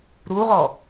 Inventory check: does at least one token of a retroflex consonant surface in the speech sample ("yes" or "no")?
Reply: no